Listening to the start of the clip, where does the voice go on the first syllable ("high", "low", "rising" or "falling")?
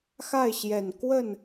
falling